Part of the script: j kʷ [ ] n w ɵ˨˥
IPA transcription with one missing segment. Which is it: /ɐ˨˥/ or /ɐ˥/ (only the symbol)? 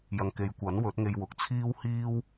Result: ɐ˨˥